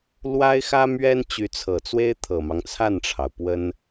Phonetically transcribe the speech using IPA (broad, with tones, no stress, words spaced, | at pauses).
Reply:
lwa˥ɪ̯xä˥mɥɛ˥n t͡ɕy˧˥t͡sʰɤ˨˩t͡swe˥ɪ̯ t̪ʰɤ˨˩mɑ˦ŋt͡sʰa˥˩nʈ͡ʂʰɑ˩ʊ̯ pwə˥n